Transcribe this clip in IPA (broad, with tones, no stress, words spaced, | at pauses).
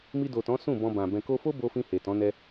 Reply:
mi˧do˨tɔ̃˨˦ sũ˦˨bɔ̃˧ bã˨ bɛ̃˨ko˧fo˦ bo˧fĩ˧ he˨tɔ̃˨˦ nɛ˧